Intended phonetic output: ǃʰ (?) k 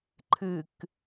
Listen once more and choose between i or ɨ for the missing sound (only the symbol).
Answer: ɨ